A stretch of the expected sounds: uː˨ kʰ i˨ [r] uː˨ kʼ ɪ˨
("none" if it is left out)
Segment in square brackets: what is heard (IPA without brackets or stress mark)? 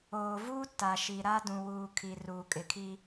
r